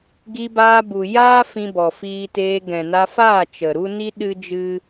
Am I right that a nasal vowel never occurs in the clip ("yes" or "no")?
no